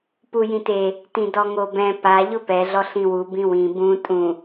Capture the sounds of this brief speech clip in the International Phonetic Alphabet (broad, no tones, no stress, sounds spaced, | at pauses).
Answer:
p u j ĩ t e | t ĩ d ɔ ŋ o b ɛ̃ p a ʎ ʊ p ɛ ɮ ɔ ɬ ĩ w u b ĩ w ĩ b ũ tʼ ũ